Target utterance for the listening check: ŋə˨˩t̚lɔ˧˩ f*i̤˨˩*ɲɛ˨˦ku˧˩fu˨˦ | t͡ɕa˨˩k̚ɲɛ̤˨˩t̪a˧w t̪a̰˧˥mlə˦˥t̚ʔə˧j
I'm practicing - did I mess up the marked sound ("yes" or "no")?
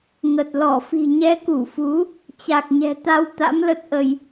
no